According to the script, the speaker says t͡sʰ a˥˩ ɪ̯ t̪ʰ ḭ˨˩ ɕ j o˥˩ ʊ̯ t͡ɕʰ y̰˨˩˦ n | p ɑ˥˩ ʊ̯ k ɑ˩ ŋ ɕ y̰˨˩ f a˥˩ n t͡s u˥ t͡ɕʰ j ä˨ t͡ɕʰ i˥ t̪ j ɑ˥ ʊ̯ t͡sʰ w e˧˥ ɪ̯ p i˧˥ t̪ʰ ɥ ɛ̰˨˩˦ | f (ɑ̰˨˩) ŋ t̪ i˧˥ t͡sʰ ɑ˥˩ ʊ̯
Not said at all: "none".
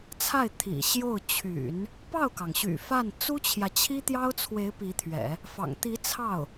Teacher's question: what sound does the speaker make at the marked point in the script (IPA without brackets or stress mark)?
ɑ̰˨˩